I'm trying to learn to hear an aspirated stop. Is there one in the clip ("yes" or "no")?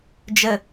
no